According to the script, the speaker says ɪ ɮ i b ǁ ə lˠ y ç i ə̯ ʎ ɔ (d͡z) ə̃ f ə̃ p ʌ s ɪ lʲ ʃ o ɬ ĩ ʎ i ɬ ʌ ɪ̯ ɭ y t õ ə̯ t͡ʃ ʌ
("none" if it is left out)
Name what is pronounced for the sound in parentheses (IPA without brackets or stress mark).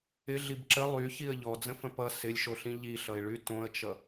d͡z